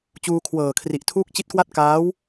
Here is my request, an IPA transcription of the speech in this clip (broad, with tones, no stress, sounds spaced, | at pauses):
t͡ɕ uː˧ kʰ w ɤː˨˩ kʰ r i˨˩ ʔ tʰ uː˦˥ k̚ t͡ɕ i˦˥ t̚ k w a˥˩ t̚ k aː˦˥ w